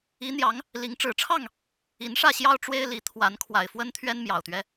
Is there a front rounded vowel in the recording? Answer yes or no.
no